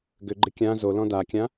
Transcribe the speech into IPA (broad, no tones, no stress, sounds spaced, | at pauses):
ɡ ʏ ɡ͡ǃ ɪ kʲ ã z o l ɔ̃ d a kʲ ã